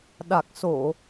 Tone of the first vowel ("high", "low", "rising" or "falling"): low